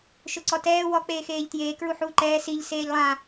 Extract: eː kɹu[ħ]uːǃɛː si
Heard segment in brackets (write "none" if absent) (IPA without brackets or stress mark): ħ